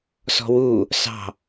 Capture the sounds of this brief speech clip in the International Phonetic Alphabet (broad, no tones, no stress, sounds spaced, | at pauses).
s ɔ̤ w u | s ɑ̤